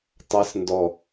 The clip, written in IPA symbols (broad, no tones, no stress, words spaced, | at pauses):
tˤas ndɔ